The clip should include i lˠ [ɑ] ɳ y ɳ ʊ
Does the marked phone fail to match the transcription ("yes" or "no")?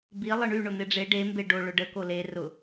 yes